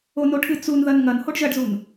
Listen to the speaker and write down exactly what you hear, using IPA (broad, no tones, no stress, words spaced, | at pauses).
onoʈʰɨ t͡sun ðɐnŋɐn hoɖʒɐɖzun